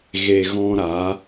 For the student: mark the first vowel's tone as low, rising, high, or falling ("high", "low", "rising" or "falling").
low